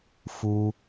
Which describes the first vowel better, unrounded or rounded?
rounded